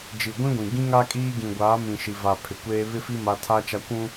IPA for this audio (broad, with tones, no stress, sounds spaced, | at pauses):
d͡ʒ i˨ ɡʷ ĩ˦ ɡʷ ĩ˨ ɡ ĩ˦ ŋ a˦ kʼ iː˦ ɡ ĩ˨ ɡʷ aː˨˦ m ĩ˨ ʃ i˨ v a˨ pʰ ɪ˨ kʷ eː˦ β ɪ˦ f i˦ m a˦ tʰ a˦ t͡ʃ a˦ kʷ ũ˦